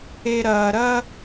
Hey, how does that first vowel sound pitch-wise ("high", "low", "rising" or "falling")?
low